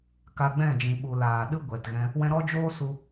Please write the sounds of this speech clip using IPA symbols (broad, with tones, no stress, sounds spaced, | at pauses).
k a˧ ɡ͡b ɛ̃˦˨ d͡ʒ ĩ˨ ɓ u˨ l aː˨ ɗ ɨ˦ ɡʷ ɛ˨ t ɣ ɛ̃˧ | w ɛ̃˧ ɾ ɔ˦ d͡ʒ oː˦ s u˧